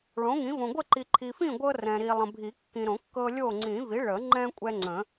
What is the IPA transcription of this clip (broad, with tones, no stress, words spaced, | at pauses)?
ɭõ˩˥ŋĩ˩˥võ˨ ɡʷə˥˨ǃi˨ǃʰi˨fĩ˥˨ ɡʷɤ˦rɛ̃˨ɾi˨ lˠə̃˨bʱi˨˩˦kːĩ˨ɾõ˨˩˦ kːɤ˦lʲo˥˨ ŋ͡ǀĩ˨˩˦vi˩˥ɭə˨˩˦ŋ͡ǃɛ̃˦ kʷʼɛ˦ŋ͡ǀə̃˨˩˦